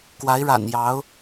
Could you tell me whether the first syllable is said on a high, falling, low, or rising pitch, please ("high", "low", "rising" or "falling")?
rising